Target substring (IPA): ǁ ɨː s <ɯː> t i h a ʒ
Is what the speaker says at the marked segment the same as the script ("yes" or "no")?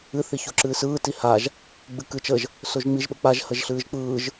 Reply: yes